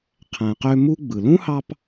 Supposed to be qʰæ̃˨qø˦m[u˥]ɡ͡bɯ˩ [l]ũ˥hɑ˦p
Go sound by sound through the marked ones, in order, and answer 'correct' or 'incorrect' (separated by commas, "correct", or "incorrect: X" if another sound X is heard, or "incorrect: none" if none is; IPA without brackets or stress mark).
correct, correct